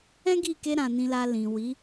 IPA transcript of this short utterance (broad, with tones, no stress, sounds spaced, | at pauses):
ɛ̃˦ ɡ i˦˨ k e˧ ɾ ã˨ n ĩ˨ l a˨ l ĩ˨ w i˨˦